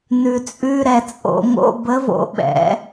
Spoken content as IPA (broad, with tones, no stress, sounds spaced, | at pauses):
n ʉ˨ t͡sʼ ʉ˧˥˧ ɾ ɛ˦˨ t͡sʼ o̰˨˩˦ ŋ o̰˧˥˧ b ə˧˥ v o̰˩˥ ɓ ɛ̰˩˥